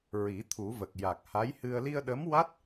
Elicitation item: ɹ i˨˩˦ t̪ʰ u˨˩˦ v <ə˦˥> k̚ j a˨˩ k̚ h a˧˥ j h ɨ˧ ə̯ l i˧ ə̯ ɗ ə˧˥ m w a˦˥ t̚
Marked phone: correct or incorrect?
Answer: incorrect